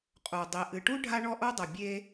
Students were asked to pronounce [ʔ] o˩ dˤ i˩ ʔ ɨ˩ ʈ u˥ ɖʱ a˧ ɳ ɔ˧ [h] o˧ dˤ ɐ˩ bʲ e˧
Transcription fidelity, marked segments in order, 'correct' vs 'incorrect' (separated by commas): incorrect, incorrect